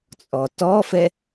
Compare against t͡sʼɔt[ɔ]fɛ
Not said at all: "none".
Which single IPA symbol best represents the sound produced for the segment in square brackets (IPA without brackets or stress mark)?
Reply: ɔ